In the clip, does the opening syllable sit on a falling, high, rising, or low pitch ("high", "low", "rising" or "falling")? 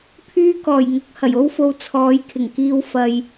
high